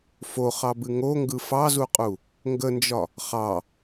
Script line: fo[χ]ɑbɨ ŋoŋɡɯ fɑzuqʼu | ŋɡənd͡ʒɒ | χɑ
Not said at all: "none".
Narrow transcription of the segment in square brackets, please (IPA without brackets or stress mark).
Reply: χ